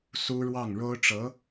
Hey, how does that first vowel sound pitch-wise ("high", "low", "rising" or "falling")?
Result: high